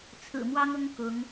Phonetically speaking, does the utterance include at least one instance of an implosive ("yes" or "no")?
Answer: no